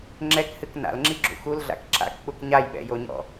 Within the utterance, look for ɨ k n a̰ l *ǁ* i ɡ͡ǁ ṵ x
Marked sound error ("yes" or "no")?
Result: yes